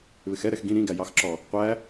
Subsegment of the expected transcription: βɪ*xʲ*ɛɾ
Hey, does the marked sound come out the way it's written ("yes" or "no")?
no